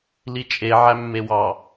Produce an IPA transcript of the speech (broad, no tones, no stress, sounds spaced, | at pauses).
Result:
l i t͡ʃʼ e ʕ æ mː e w ɑ